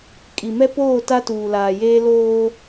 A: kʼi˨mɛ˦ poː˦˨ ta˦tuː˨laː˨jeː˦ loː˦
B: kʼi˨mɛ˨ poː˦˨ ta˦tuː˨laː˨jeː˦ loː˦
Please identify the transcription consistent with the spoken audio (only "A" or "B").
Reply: A